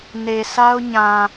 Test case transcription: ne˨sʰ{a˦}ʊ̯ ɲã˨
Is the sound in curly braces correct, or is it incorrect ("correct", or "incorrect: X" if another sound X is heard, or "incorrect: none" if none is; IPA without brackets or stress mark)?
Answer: correct